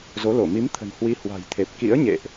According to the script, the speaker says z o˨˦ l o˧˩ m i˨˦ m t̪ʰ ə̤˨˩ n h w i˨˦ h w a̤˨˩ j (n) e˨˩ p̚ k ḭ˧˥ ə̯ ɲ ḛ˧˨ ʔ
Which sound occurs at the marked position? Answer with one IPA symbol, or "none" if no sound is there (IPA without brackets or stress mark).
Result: t̪ʰ